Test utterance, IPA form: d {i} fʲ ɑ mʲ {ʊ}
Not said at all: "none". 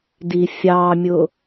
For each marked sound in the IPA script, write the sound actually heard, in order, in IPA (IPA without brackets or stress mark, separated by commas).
i, ʊ